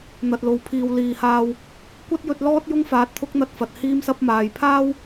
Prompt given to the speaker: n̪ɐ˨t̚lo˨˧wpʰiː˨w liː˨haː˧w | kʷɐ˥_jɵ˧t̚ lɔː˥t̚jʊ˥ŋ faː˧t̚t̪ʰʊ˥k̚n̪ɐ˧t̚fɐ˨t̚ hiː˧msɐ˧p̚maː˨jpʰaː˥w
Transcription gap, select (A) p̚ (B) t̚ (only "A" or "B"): B